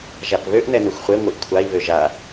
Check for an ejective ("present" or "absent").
absent